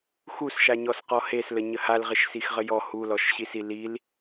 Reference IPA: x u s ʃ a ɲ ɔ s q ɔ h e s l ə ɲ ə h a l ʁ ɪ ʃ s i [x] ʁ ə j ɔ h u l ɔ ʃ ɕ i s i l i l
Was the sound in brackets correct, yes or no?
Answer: yes